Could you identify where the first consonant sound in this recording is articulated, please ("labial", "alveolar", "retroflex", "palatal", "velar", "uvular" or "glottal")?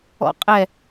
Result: uvular